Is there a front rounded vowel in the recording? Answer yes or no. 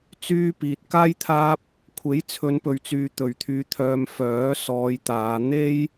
yes